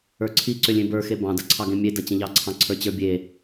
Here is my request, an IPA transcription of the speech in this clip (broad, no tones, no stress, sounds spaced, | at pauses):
ə˞ ǀʰ i ǀ ʏ lʲ ẽ b ə˞ x e b ɑ̃ d ɐ ǀʰ ɑ ɡ ẽ mʲ e d ɐ t͡ɕ ə̃ ʎ ɑ ǀʰ ɑ̃ ǀʰ ə˞ t͡ɕ ə˞ bʲ e